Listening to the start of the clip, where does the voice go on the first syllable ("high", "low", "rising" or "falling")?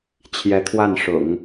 rising